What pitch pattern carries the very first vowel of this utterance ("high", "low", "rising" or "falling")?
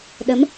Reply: rising